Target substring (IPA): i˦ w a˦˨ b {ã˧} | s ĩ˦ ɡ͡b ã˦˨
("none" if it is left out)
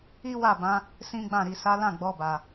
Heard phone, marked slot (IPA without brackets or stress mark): ã˧